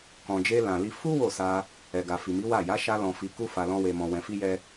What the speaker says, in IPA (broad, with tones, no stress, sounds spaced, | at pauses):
k ɔ̃˨ d͡ʒ e˧ l ã˨ l i˧ f u˦ w o˦˨ s a˧ | ɛ˨ ɡ a˨ f i˨ m i˨˦ w a˦˨ j a˨˦ ʃ a˧ l ɔ̃˨ f i˧ k u˦ f a˧ l ɔ̃˦ w e˧ m ɔ̃˧ w ɛ̃˧ f i˦ j ɛ˦